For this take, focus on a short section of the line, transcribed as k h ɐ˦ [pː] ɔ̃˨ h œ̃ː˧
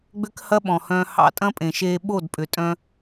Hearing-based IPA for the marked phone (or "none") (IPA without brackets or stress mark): ɓ